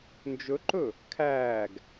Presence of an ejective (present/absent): absent